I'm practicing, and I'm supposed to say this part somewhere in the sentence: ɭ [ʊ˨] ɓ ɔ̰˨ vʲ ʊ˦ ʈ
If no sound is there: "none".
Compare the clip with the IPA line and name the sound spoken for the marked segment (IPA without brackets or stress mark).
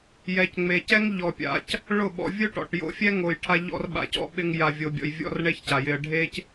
ʊ˦˨